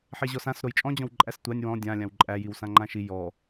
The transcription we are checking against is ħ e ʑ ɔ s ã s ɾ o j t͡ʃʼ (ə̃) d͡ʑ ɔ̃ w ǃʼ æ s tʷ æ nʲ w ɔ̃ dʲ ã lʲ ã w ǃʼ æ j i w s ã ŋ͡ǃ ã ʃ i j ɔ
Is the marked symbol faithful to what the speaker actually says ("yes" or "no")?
no